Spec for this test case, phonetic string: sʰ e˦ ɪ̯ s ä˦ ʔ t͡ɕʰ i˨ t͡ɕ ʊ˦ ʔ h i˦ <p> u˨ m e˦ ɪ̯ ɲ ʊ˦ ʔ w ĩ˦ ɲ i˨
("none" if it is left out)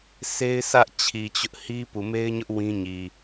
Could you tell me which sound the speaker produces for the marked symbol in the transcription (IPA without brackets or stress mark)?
p